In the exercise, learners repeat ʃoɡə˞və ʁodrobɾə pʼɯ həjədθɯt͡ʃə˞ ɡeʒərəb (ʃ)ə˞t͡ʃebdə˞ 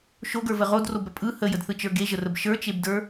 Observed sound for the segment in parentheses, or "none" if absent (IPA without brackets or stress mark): ʃ